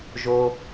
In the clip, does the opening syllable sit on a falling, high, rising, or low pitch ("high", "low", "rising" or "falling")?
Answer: low